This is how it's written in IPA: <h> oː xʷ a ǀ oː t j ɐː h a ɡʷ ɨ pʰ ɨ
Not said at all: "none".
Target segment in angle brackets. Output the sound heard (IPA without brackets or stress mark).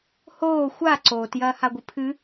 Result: h